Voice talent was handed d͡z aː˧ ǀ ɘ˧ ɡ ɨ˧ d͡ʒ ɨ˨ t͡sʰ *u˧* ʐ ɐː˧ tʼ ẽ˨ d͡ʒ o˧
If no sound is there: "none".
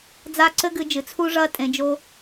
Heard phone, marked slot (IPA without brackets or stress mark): u˧